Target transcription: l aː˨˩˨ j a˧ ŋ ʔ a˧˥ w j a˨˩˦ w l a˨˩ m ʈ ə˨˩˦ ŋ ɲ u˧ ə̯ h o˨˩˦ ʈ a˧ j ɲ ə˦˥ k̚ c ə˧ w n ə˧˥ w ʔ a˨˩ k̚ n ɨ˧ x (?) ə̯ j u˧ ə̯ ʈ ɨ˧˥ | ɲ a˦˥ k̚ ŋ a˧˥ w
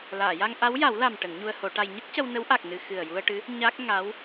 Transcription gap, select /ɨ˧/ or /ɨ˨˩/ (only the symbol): ɨ˨˩